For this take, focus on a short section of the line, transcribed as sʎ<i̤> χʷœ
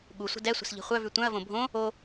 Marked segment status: correct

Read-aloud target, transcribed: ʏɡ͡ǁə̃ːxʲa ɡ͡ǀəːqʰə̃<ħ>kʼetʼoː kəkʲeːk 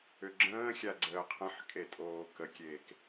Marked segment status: correct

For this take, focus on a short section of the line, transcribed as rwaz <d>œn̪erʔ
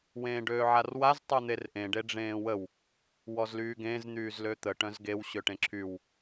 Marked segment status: incorrect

